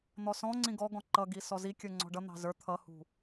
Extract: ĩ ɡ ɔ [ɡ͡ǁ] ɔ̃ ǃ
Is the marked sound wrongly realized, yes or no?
yes